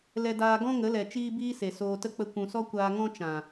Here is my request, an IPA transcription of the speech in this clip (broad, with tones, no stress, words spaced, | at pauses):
lɛ˧daː˧ɡɔ̃˦ ŋə˨˦lɛ˨ t͡ʃiː˦biː˦se˨ soː˧tə˦k͡pə˧ kʷũ˨sɔ˦kʷaː˧ ŋɔ̃˦ t͡ʃã˨